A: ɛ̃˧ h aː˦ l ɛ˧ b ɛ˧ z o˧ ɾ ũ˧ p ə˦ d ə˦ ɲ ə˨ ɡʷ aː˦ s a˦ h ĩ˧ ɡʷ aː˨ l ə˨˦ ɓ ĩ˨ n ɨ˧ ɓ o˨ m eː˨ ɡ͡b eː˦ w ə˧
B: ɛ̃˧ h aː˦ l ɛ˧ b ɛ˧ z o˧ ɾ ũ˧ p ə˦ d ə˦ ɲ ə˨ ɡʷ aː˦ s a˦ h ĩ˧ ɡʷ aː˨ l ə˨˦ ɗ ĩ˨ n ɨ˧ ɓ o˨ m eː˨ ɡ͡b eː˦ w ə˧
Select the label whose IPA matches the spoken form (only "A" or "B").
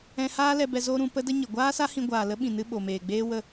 A